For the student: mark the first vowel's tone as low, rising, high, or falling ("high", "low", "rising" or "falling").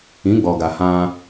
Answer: rising